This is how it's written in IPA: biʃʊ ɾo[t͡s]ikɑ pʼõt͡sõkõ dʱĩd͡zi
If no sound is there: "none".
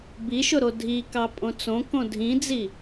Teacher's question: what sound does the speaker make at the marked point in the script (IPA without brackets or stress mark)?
dʱ